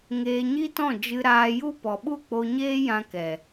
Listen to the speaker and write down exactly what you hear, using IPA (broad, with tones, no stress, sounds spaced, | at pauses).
ŋ eː˧ ɲ i˦ t ɔ̃˦˨ d͡ʒ ɨ˧ ɾ aː˧ j u˦ p ɔ˨ ɓ u˦˨ k͡p o˧ ɲ eː˦ j ã˧ k ɛ˨